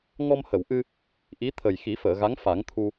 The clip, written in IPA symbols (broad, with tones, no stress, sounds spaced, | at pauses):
ŋ ɔ˧ m h ə˨˩˨ w ʔ ɨ˧ | ʔ i˧˥ t̪ʰ ə˨˩ j x i˨˩˦ f əː˨˩˨ ɣ a˧˥ ŋ f a˨˩˦ ŋ t̪ʰ u˧